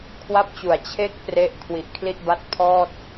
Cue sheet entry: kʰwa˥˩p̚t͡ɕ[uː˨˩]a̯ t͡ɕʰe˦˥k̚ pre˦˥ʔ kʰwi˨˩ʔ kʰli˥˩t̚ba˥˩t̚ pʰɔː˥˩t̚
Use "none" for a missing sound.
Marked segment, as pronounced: u˨˩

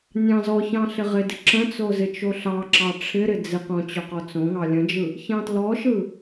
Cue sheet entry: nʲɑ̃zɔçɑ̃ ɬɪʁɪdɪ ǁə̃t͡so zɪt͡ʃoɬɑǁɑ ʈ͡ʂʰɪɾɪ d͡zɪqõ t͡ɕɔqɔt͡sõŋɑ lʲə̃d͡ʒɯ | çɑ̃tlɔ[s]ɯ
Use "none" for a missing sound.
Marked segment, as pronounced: ʃ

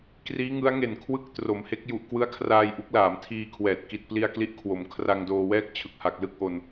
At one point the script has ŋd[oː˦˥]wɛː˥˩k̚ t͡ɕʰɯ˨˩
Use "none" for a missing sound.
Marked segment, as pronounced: oː˧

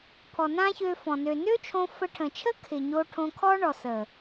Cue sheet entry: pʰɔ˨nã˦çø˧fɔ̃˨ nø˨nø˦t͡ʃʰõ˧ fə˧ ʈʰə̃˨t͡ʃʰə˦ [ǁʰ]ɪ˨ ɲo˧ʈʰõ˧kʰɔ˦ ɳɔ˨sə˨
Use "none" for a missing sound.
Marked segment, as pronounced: kʰ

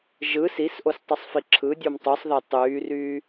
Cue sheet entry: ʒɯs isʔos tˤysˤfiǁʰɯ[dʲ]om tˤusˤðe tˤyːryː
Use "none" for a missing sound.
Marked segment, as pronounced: dʲ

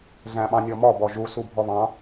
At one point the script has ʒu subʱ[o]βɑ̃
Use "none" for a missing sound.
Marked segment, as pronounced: ɔ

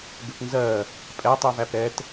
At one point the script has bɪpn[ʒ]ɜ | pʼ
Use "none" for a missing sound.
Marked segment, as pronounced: z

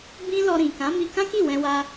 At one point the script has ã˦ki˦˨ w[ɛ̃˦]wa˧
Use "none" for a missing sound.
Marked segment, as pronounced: ɛ̃˧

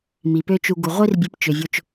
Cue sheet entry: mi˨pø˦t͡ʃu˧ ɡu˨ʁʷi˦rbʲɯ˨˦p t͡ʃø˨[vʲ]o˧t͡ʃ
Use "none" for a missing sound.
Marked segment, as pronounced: vʲ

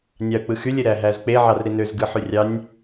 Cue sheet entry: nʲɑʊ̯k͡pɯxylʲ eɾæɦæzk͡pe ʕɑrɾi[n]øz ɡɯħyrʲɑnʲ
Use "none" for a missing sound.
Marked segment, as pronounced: n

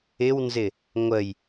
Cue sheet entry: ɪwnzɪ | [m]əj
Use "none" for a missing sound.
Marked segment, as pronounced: ŋʷ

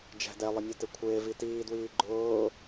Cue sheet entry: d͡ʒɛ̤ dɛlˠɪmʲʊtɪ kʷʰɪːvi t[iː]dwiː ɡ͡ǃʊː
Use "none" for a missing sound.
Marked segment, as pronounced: iː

